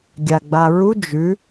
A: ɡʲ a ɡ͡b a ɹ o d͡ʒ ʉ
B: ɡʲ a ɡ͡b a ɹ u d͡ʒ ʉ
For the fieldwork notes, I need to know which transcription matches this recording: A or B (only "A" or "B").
B